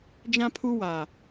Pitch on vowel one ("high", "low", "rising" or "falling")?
high